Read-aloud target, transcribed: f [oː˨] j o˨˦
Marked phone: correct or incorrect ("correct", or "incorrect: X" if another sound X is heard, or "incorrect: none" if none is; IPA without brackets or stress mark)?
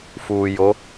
incorrect: uː˨